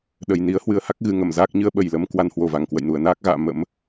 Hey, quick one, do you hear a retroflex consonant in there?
no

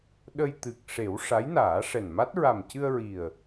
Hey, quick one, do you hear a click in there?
no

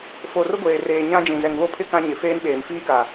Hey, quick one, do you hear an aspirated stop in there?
yes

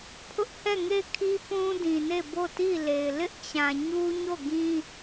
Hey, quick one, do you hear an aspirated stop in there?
yes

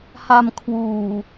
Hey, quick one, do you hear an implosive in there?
no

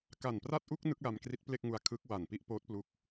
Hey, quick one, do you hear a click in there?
no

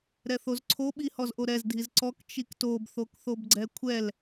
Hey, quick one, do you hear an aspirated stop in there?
yes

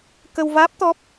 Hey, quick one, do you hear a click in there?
no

